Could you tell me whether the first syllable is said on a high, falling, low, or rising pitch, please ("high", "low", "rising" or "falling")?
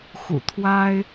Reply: low